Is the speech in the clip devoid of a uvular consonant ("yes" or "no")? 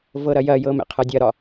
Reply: no